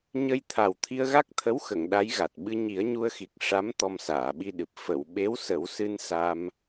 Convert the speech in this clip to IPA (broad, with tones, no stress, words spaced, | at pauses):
ɲə˧jt̪ʰa˨˩w t̪ʰi˧ə̯ɣa˦˥k̚t̪ʰə˧˥wxə˨˩˨ŋ ɗa˧˥jɣa˨˩t̚ ɓɨ˧ɲi˨˩˦ə̯ɲu˧ə̯xi˨˩k̚ ʂa˧˥m t̪ɔ˧msaː˨˩˨ɓi˧ɗɨ˨˩p̚ fə˨˩˨w ɓe˧˥wsə˨˩˦wsɨ˧n sa˧m